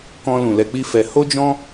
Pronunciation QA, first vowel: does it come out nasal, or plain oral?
nasal